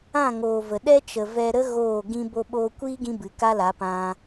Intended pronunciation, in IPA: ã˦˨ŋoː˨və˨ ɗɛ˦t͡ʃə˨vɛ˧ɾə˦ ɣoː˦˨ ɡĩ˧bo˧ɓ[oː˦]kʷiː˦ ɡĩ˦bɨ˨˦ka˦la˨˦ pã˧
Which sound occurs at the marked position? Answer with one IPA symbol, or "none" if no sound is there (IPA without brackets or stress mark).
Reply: oː˧